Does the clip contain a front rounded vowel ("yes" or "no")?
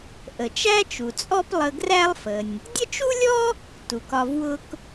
no